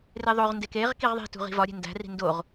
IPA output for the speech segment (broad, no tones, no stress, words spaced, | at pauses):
reðˤoʁndek eʁ kiʁðˤi̤tṳʁ i̤vɒɾʲe̤ ndæ̤ri̤ ndoʁ